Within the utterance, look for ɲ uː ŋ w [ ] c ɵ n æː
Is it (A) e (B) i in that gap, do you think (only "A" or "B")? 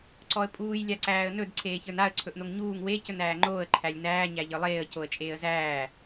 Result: A